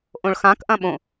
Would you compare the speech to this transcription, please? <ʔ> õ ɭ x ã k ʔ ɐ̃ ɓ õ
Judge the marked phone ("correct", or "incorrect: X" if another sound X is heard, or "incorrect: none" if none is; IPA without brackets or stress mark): correct